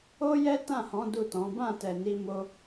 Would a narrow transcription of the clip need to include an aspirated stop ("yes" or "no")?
no